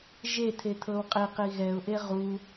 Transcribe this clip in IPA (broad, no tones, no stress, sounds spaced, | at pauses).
ʒ e t̪ʰ e t̪ʰ ɤ w qʼ i q i ɣ ɛ ʊ̯ ʔ e ʁ u